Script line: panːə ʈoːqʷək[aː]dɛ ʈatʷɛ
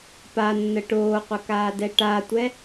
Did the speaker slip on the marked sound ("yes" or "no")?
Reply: no